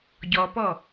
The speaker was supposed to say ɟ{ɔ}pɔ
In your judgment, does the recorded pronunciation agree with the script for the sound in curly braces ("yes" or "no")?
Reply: yes